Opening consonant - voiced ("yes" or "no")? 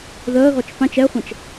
yes